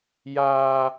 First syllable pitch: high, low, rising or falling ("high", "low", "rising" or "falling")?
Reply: high